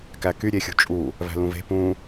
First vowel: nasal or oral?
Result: oral